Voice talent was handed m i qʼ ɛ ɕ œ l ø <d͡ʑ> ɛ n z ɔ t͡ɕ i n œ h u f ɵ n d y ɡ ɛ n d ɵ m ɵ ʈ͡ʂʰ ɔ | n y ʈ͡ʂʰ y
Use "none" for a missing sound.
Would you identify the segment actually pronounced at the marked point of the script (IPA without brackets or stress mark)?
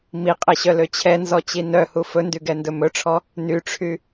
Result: t͡ɕʰ